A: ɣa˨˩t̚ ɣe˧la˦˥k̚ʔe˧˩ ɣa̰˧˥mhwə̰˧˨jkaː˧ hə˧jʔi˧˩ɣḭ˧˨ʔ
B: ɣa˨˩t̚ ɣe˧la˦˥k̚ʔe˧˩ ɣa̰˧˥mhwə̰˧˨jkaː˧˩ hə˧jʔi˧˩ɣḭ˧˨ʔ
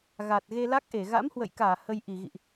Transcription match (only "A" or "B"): B